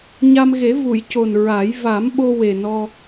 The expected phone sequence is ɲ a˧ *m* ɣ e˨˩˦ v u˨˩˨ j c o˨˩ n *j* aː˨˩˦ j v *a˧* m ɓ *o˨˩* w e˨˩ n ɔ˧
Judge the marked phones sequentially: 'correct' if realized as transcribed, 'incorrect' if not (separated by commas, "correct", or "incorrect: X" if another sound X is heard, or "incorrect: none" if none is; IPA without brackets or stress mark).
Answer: correct, incorrect: ɹ, incorrect: a˨˩˦, incorrect: o˧